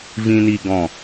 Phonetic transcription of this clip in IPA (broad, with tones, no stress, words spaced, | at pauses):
vĩ˥ni˥ɡɔ̃˥˧